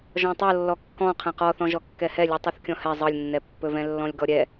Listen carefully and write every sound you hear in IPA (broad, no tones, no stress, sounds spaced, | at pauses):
ʒ ɔ̃ tˤ ɤ lː ɔ kː ɔ̃ qʰ ɛ̃ q ɔ θ ɔ̃ ʒ ɔ kː ɛ h ɛ lʲ u tˤ u θ kʲ ɔ̃ h ɛ zˤ ɤ lʲ nː ɛ pː ɵ v ɛ̃ lː ɔ̃ lʲ ɡ ɔ ɾʲ ɛ